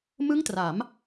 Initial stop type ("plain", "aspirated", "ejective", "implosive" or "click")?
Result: plain